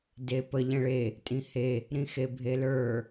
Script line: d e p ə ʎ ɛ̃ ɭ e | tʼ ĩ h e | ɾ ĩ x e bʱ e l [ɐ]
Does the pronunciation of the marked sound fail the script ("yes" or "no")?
yes